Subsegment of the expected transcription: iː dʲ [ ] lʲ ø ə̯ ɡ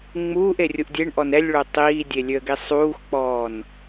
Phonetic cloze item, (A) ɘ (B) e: B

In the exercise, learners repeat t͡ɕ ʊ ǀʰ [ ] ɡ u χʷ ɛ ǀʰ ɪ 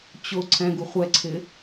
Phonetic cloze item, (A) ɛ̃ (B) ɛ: A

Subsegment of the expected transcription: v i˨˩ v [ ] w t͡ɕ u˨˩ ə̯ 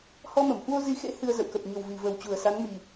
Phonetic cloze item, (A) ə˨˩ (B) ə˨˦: A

